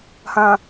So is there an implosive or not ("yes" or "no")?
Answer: no